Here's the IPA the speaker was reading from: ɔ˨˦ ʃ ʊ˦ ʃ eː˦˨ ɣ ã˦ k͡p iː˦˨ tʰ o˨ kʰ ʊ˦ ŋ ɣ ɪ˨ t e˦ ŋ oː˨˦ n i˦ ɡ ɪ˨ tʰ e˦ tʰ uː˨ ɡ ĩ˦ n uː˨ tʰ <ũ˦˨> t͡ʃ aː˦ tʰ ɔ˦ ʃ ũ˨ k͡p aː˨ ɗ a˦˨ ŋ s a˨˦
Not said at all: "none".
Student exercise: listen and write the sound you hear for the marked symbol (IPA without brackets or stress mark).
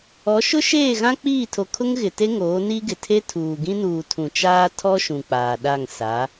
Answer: ũ˨